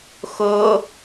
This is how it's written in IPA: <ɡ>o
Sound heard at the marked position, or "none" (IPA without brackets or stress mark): x